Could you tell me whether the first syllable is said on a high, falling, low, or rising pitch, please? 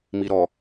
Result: low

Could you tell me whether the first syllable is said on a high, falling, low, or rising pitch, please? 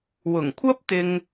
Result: low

